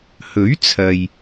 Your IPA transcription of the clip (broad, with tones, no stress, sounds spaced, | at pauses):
h ɵ˨˥ ɥ t͡sʰ ɐ˨ j